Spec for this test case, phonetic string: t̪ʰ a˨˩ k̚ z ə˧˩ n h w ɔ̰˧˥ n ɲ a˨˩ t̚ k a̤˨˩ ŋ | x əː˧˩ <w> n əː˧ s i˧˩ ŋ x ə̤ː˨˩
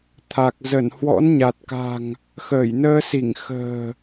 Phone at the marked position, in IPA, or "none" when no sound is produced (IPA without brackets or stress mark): j